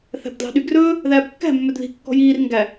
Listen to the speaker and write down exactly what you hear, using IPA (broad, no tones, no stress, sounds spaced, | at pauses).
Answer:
θ æ̤ b d l ɑ̤ ɗ y ɡ r ɵː | ð æː b kː æ̤ mː œ d ð i̤ kː ɔ̤ j iː r ŋ ɡ æ